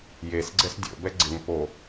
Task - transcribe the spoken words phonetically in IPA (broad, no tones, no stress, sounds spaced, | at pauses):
j e s ɡ͡ǀ ɛ s dʲ o̰ b ɛ ɡ͡ǀ ɪ ŋ p o